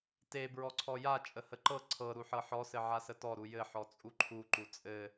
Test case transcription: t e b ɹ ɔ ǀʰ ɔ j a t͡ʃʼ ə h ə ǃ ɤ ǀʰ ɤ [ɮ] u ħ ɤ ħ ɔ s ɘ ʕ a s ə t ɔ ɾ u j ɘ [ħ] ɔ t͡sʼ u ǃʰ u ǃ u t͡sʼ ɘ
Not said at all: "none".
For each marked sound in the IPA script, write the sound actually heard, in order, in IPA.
ɾ, ħ

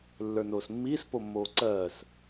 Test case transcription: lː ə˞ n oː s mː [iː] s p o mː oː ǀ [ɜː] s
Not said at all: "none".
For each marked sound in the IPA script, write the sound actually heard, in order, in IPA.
iː, ɜː

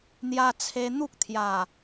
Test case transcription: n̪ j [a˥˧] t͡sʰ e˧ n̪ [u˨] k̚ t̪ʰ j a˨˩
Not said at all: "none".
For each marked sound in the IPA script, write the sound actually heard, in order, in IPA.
a˧, u˦

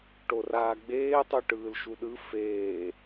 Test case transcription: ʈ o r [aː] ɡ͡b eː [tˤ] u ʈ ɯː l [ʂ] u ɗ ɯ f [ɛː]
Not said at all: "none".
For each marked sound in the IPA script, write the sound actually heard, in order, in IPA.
aː, tˤ, ʃ, eː

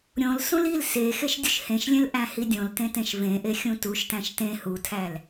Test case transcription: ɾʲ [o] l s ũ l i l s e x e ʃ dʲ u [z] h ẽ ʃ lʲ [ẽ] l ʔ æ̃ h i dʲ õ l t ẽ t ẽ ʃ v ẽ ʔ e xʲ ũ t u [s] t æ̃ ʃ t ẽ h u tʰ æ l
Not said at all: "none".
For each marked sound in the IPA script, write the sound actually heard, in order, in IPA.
õ, ʃ, ẽ, ʃ

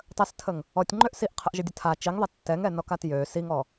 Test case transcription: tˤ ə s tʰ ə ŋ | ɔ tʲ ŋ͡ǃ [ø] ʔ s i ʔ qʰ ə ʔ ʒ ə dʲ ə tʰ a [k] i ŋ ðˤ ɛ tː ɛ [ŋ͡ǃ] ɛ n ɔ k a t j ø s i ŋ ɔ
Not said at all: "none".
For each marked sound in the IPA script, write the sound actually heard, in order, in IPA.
ø, t͡ʃ, ŋ

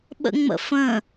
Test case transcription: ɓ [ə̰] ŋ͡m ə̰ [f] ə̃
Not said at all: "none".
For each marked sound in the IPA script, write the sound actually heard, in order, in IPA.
ə̰, f

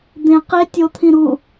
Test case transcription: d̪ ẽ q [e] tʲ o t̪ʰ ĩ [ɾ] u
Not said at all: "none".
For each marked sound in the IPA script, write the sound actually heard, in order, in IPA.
e, ɾ

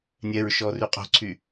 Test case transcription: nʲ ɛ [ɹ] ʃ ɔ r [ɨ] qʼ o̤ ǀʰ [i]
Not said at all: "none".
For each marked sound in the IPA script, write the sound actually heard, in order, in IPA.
ɹ, y, y

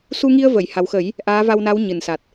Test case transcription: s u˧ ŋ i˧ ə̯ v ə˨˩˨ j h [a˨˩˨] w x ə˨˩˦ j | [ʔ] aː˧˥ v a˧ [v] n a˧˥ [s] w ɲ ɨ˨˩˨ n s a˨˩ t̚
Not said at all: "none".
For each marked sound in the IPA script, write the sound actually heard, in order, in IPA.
a˨˩, ʔ, w, none

